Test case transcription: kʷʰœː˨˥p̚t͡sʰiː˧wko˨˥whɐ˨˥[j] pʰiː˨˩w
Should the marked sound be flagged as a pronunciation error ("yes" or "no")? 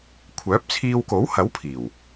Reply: yes